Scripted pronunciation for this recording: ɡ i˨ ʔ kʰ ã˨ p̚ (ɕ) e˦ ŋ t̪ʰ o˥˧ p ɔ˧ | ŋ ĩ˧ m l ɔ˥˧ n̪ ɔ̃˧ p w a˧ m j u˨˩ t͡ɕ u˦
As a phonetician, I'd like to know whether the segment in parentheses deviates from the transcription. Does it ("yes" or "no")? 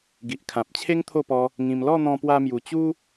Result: yes